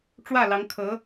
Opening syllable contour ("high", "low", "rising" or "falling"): falling